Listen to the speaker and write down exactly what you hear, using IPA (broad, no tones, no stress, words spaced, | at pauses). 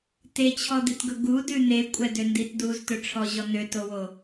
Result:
tet͡ɕʰɔd̪itɡɵ ɡudʉ n̪ekʷʼɛdøndit duztɵʈ͡ʂʰɔʑɔ n̪øtowo